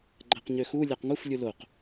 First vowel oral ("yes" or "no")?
yes